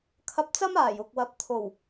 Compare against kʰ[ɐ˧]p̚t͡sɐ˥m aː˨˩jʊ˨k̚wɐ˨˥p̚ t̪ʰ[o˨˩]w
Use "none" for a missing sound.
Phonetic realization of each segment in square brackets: ɐ˧, o˨˩

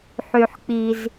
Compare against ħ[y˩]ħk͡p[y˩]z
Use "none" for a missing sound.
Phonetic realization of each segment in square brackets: y˩, i˩

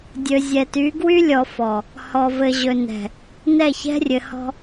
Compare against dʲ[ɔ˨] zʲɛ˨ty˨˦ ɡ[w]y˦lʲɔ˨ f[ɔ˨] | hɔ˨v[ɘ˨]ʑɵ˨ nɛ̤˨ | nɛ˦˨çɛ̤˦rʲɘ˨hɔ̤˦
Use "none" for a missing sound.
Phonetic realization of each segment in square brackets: ɵ˨, w, ɔ˨, ɘ˨

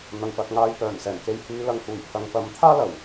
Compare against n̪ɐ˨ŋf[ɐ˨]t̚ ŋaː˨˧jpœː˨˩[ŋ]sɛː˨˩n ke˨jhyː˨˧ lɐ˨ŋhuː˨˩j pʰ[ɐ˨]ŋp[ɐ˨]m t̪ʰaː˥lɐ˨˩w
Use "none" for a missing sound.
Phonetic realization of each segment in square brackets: ɐ˨, n, ɐ˨, ɐ˨

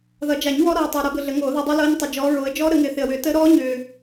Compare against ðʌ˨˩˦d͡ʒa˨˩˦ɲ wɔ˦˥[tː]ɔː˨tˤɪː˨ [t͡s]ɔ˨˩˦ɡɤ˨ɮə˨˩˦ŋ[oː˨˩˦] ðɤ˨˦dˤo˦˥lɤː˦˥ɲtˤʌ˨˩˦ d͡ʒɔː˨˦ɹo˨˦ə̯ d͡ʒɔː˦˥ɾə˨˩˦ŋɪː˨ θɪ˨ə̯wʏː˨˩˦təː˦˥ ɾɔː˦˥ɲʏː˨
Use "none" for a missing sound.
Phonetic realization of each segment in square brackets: ɾ, ɾ, oː˨˩˦

